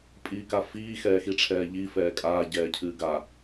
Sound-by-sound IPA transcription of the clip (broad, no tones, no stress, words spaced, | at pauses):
pʼiːkafiː xɛːxiʈ͡ʂʰɛːʎi fɛːkʼaː ɟɛːcʰɨːɡa